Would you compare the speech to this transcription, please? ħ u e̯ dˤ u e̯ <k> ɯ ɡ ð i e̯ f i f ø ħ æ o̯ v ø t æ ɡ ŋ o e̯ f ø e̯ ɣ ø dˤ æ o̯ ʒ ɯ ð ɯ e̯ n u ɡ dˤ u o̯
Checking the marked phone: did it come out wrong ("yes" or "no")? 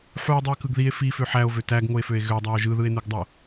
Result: no